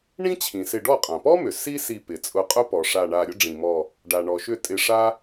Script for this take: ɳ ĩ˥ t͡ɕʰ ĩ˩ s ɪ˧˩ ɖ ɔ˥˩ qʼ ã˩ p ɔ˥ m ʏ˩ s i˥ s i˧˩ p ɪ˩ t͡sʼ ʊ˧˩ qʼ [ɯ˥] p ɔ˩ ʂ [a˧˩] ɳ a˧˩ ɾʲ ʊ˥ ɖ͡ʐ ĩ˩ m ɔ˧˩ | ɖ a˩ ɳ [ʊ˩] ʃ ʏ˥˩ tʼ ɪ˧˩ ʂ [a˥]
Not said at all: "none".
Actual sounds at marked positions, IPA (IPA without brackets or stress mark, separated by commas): ʊ˥, a˧˩, ɔ˩, a˥